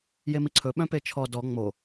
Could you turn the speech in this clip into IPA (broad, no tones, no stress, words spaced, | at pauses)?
jemiǀʰɵ ɓœ̃pet͡ʃʰɔ dɔ ŋ͡mo